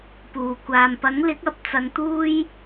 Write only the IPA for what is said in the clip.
p uː˨˩ kʷ aː˨ m p ɐ˨˥ ŋ l ɪ˨˥ k̚ ɐ˨ p̚ t͡s ɐ˨˧ ŋ t̪ uː˥ j

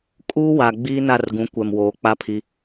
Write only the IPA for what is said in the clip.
kʼ uː˦ w a˨ ɡ͡b iː˦ n a˦˨ r ɡ ũ˨˦ kʷ ɛ˨ m w oː˨˦ k͡p a˦ pʰ i˦

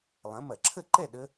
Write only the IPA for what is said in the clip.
lˠ ɐ̃˨˥ m ɐ˧˩˧ ǁʰ ə˥˨ ǃ ɛ˥˨ ɗ ə˦˥

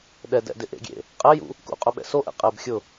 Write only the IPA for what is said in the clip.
ɗ ɛ d ɛ̰ d ɪ ʔ ḛ ɡʲ ḛ | qʼ ɛ j ṵ | k ṵ qʼ ʊ ɓ ɛ̰ s o ʔ ɛ̰ qʼ ɛ b xʲ ʊ

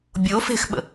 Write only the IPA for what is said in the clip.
bʲ o f e̤ x ɓ ə̰

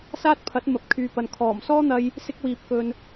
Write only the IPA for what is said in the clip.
s aː˥ t̚ pʰ ɐ˨˥ t̚ m ɐ˨˥ p̚ kʰ yː˨ p ɐ˨ n kʰ ɔː˨˩ m s ɔː˥ n̪ ɐ˧ j | s ɪ˥ k̚ w iː˨ p̚ k ɵ˨ n

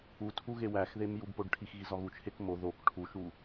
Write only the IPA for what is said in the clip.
u tʰ u ɣ e w æ x ð e m j u b p o ɖ ʈʰ i x ɣ i z ɒ ɣ u t͡ʃʰ e k m o ð o k ʈʰ u ʃ u

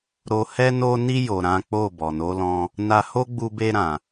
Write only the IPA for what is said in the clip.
ɾ o˧ h ɛ˦ n o˧ n i˧ j o˨ ɾ ã˨˦ k͡p o˦˨ b ɔ˨ n o˨˦ l ɔ̃˧ | n a˧ h o˦ ɡ͡b u˧ b e˧ ɾ ã˨

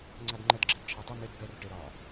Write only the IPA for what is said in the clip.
ŋ͡ǀ a d ŋ͡ǃ ə d ɡ͡ǁ ɛ d t͡ʃʰ a tˤ ʏ m e d b ɛ r ʈ e ɾ ɒ

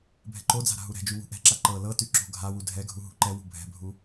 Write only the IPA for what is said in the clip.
bʱ ɛ̤ ǃ o d͡z a̤ ɾ a̤ ɦ u ɾ ɛ̤ d͡ʒ y w ṳ ʔ ɛ̤ ǁ a ǃ ɤ l ɤ t y ǁ o̤ ɡʱ a w u dʱ ɛ ɡʱ u ɦ ṳ ǃ ɛ w ṳ bʱ ɛ̤ bʱ u

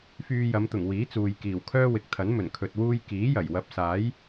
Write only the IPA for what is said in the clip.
f yː˧ j ɐ˨˧ m t̪ ʊ˨˩ ŋ w iː˨˥ t͡s uː˨ j k iː˨˩ w kʰ œː˥ w ɪ˨˥ k̚ t̪ʰ ɐ˨˥ n m ɵ˨˩ n kʰ ɵ˨ t̚ w uː˧ j k iː˨˥ j ɐ˨˩ j w ɐ˨˥ p̚ s aː˨˥ j

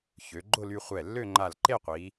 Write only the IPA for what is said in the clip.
ç ø˩˧ ɡ͡ǃ ʊ˥˧ l y˧ χʷ ɛ˧˩ lː ø˥˧ ŋ͡ǃ a˧˩ l ǃ e˥˧ qʷ iː˩˧

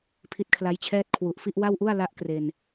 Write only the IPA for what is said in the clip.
pʰ i˦˥ t̚ kʰ l a˦˥ j t͡ɕʰ ɛː˥˩ t̚ kʰ w u˨˩ ʔ f i˥˩ ʔ w a˥˩ w ʔ u˥˩ a̯ l a˦˥ ʔ k r e˧ n

